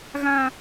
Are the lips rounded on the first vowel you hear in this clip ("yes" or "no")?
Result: no